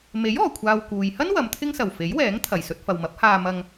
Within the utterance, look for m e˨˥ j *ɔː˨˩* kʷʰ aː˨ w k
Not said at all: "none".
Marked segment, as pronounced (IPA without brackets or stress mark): ɔː˨˩